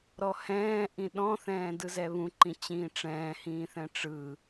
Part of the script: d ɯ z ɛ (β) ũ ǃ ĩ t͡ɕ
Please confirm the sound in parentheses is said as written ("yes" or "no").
yes